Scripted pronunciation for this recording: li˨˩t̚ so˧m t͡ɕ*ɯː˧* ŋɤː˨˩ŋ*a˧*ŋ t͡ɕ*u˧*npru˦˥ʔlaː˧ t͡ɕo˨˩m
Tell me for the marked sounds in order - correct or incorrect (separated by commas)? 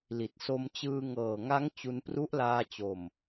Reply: correct, incorrect, correct